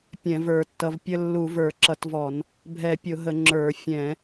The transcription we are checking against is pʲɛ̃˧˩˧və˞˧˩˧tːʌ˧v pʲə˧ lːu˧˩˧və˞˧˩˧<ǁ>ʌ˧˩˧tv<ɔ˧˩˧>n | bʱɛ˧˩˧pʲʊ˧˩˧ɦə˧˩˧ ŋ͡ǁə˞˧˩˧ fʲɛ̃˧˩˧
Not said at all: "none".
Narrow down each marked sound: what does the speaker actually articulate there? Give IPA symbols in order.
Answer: ǁ, ɔ˧˩˧

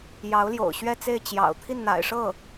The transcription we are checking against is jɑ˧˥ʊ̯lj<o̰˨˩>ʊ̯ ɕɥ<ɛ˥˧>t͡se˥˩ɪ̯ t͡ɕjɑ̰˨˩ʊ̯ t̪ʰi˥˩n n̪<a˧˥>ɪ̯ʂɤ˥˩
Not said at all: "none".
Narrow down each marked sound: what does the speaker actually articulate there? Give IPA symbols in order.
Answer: o̰˨˩, ɛ˥˧, a̰˨˩

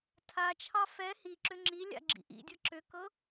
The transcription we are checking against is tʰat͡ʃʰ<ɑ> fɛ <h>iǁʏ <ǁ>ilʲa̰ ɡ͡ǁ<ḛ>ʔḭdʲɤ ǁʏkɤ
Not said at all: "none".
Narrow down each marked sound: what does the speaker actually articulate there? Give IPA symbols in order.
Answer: ɑ, h, ŋ͡ǁ, ḭ

